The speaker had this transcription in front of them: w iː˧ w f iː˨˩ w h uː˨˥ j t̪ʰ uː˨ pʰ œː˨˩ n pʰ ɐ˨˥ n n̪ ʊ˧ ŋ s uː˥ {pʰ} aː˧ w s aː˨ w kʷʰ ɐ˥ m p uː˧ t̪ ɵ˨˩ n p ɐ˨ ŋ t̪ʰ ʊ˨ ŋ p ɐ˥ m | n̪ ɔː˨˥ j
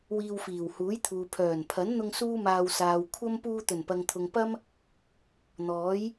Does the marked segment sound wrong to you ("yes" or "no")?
yes